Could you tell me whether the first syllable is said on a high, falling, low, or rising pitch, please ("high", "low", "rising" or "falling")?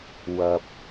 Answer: low